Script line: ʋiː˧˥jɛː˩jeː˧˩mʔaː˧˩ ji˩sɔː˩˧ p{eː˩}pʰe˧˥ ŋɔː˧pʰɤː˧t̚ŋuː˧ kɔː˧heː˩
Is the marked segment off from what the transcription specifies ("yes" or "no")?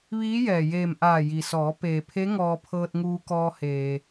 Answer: no